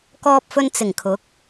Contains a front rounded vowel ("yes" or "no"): no